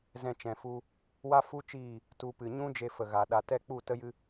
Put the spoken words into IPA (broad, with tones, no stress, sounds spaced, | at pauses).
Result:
z ɛ̃˧ t͡ʃ ɛ̃˨ f u˧ | w a˦ f u˦ t͡ʃ iː˦˨ | t u˧ p ɨ˨ ɲ ũ˦ d͡ʒ e˧ f ə˨ ɣ a˨ ɗ a˨ t ɛ˦˨ k͡p u˦˨ t ə˦ j ɨ˦